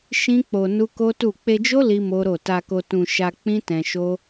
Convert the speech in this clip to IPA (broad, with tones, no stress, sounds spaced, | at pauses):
ʃ ĩ˦ k͡p o˧ n u˦ k o˦ t u˦˨ k͡p e˧ d͡ʒ o˦ l i˦ m o˦ ɾ o˦˨ t a˧ k o˧ t ũ˧ ʃ a˧ k͡p ĩ˦ t ɛ̃˧ ʃ o˦